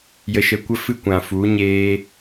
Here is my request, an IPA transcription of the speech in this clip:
j ə˧ ʃ ə˧ kʷ ə˦ f ɨ˦ kʷ ã˨ f u˨˦ ɲ eː˦

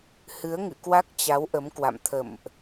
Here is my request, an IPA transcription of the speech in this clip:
h ɨ˨˦ ə̯ ŋ ɨ̰˧˨ k w a˦˥ k̚ t͡ɕ a˨˦ w ʔ ə˨˦ m k w a̰˧˨ m t̪ʰ ə̰˧˨ m ʔ

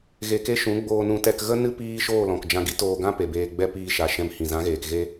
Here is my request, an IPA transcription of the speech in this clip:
ɣ e˧ k e˦ ʃ ũ˨˦ ɡ͡b oː˧ n ũ˧ t ɛ˧ k ɣ ə˦ n ɨ˦ p iː˦ ʃ oː˦˨ l ɔ̃˨ k d͡ʒ ã˧ ɡ i˦ t oː˧ ɡ ã˦ p e˨ b eː˧ ɡ͡b ɛ˦ p iː˧ ʃ a˨ ʃ ɛ̃˧ m h ĩ˨ z ã˨˦ ɣ eː˨ k ɣ e˧

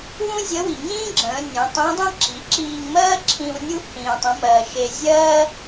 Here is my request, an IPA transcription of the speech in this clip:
w ũ˥ zʲ ə˧˥ w i˩ ŋ ĩː˥ ɡ͡ǁ ə̃ː˩˧ nʲ ə̃ː˩˧ tˤ ĩ˧˥ dˤ ĩ˥ ǁ i˩˧ ǁ iː˧ ŋ m ɜː˥ ǁʰ ĩ˧ w nʲ u˥ h ĩː˧ tˤ ə̃˧˥ m ɜː˧ ʃ e˧ zʲ ɜː˥

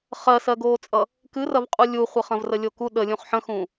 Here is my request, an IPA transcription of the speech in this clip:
χ ɜ s ɜ ɡ oː t͡sʼ ʌ | k ɨ r ɐ v qʼ u lʲ u χʷ ə χ ɐ̃ v r ə lʲ o k u ɗ ə lʲ ũ χ ħ ə̃ x ũ

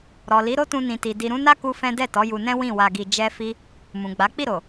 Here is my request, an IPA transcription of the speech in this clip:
ɾ ɔ˨ l i˨˦ ɾ o˦ t ũ˧ n ĩ˨ t i˨ d i˨ ɾ ũ˨˦ n a˦ k u˦ f ɛ̃˦ d ɛ˦˨ t ɔ˨˦ j u˧ n ɛ̃˦ w ĩ˦˨ w a˧ ɡ i˧ d͡ʒ ɛ˦ f i˦ | m ũ˨ ɡ͡b a˨˦ k͡p i˦˨ ɾ o˨

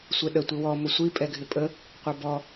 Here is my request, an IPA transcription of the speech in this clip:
sʷ ɛ ɗ ə tʷ ɪ w ɔ m ʊ sʷ i pʼ ɛ ɡʱ ɪ pʼ ə | qʷ ʌ b ɔ

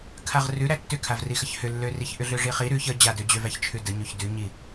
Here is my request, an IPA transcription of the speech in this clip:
kʰ a ʁ r ʉ ɾ æ tː ʏ kʰ a v r i x ə ç h ʏ lː ø r i ç ʔ ʏ ɮ ø ʐ i χ i ɾ ʉ ç ə d͡ʑ a d ø d͡ʑ ø v æ ç t͡ʃʰ ʉ d ə ɲ ʉ ç d ʉ ɲ i

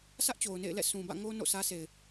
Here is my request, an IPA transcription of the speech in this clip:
s ä˦ ʔ t͡ɕ o˨ ʊ̯ n ḛ˦˨ ɪ̯ l ɛ̰˦˨ s ũ˨ b ä̰˦˨ ŋ o˦ n o̰˦˨ s ä˦ s e˨ ɪ̯

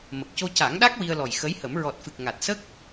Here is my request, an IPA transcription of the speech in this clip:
m ə˨˩ k̚ c o˧ c a˨˩˦ ŋ ɗ a˦˥ k̚ w i˧ ə̯ l ɔ˨˩ j x ə˧˥ j h ə˨˩˦ m ɹ ɔ˨˩ t̚ f ɨ˨˩ k̚ ŋ a˨˩ t̚ s ə˦˥ k̚

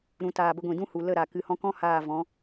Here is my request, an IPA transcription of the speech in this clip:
ɾ ũ˨ t aː˨ b ə˧ ɡʷ ĩ˨ d ũ˦ h u˨ l ə˦˨ ɾ a˨ k ɨ˨ h ɔ̃˧ k ɔ̃˦ h aː˦˨ v ɔ̃˨˦

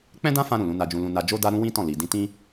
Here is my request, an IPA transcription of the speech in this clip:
k͡p ɛ̃˦ d ã˦ f ã˧ ɾ ũ˨ l ũ˨˦ n a˧ d͡ʒ ũ˧ l ũ˧ n a˧ d͡ʒ o˦ d a˦ ɾ ũ˦ w ĩ˦ t ɔ̃˦˨ l i˨ d ĩ˧ t ĩ˦

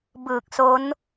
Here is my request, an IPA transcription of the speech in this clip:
b ɯː˨˩ k̚ s o˦˥ n

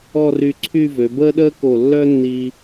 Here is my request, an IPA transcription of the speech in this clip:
ɔ˥˧ r y˧ ǀʰ y˥˧ v ø˩˧ b əː˥ ɗ əː˥ k o˧˩ lː œ˥ nː i˧

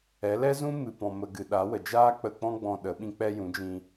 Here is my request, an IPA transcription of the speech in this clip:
ɛ˨˦ l ɛ˦ z ũ˦ m ɨ˨ p ɔ̃˨ m ə˨ ɡ ɨ˨ ɗ a˨˦ w ə˨ d͡ʒ aː˦ k͡p ə˧ k͡p ɔ̃˦ ɡ͡b ɔ̃˧ ɗ ə˨˦ ɓ ĩ˧ k͡p ɛ˧ j ũ˨˦ d͡ʒ ĩ˧

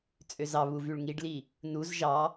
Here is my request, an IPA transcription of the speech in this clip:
t͡sʼ ø z ɑ β u v y ɭ ŋ i ɖ l i | n u z ʒ ɑ

